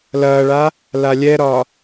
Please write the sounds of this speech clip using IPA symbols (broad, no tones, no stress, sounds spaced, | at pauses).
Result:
l ɐː ɭ a | l a lʲ ɛ ɾ ɒ